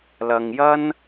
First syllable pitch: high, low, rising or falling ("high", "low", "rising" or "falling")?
low